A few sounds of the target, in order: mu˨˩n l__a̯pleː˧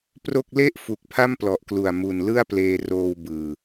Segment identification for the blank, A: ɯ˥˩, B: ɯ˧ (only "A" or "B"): A